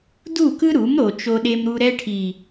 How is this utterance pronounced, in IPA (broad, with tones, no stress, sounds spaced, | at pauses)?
d u˦˨ k ɯ˦ ɾ u˨˦ m ɾ o˨ t͡ʃ o˧ ɗ e˧ m ɾ u˧ ɾ ɛ˧ ʈʰ i˨